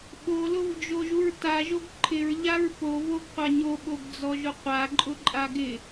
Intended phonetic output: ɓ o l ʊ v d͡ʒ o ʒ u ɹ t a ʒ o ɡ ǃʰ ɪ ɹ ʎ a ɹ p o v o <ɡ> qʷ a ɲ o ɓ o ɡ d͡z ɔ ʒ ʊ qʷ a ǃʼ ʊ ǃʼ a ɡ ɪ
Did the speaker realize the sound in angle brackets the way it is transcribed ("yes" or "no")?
yes